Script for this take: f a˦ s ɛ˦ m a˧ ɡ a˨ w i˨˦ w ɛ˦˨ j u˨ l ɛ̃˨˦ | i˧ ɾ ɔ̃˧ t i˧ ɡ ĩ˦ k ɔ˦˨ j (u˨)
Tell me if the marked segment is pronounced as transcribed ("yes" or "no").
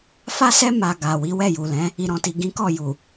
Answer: yes